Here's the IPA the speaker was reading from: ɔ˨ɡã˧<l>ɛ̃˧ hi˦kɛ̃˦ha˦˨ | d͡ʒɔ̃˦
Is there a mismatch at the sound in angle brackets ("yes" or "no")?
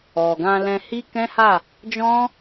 no